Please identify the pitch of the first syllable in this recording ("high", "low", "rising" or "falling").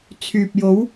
low